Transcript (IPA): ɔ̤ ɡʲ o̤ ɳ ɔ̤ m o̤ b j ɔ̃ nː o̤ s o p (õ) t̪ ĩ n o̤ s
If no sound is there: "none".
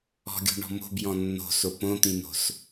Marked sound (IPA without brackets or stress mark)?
õ